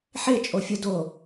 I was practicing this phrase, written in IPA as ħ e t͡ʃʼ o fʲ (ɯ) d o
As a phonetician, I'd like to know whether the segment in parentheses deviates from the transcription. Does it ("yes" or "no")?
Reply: no